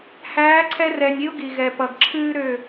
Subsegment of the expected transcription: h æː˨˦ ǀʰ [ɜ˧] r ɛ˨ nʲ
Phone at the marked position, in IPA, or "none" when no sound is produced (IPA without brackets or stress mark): ɛ˧